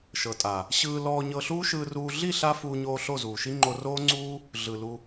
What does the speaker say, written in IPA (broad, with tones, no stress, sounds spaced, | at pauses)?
ʃ ɤ˨ tʼ a˨ | ɕ ɯː˧ l ɔː˧ ɲ ɤ˧ ɬ uː˦ ʃ ɯː˧ r uː˧ ɮ i˦˨ ɬ a˧ f uː˧ ɲ oː˧ ɬ o˦˨ z uː˨ ʃ i˦ ŋ͡ǃ o˧ r oː˦ ŋ͡ǀ uː˦ | ɮ ɯ˨ l u˧